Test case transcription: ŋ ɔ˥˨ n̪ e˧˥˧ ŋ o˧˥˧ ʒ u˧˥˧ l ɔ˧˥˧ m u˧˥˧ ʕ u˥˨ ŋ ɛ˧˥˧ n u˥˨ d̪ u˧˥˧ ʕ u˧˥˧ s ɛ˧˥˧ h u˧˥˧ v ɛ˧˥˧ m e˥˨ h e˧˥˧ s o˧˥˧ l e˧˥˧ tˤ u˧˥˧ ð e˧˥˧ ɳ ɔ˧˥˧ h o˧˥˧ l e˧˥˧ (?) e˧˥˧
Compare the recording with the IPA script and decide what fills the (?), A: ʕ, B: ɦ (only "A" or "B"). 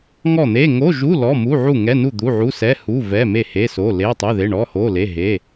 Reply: B